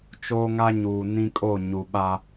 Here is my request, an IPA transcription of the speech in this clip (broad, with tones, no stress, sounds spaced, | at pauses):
t͡ʃ o˦ ŋ a˦ ɲ uː˨ n ĩ˦ kʼ o˦˨ ɲ u˨ ɓ a˦